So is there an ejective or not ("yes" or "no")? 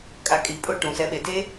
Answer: yes